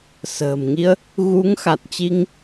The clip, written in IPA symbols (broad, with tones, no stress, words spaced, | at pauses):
sə̤ː˨˩mŋi˧ə̯ | ɣu˨˦ŋ xa˨˩t̚t͡ɕi˧ŋ